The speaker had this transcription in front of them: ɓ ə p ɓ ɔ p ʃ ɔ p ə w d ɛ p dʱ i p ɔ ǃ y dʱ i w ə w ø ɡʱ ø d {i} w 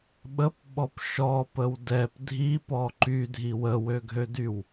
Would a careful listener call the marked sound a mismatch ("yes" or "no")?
yes